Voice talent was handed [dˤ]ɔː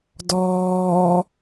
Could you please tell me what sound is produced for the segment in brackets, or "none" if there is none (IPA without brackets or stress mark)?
d